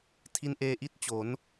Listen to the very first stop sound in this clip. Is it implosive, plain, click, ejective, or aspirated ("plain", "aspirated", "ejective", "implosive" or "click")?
aspirated